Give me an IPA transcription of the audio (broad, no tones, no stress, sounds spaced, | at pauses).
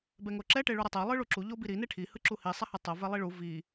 b ɛ ŋ o ǁ ɛ ʈ e ɭ u ɾ ɛ tˤ ɛ lˠ ɯ ɭ u ǁ u ʎ o b i ɾ i n e ʈʰ i h ɯ ǁ u h i sˤ a h ɯ tˤ o v ɛ lˠ i ɭ u v i